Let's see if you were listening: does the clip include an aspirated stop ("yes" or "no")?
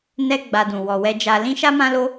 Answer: no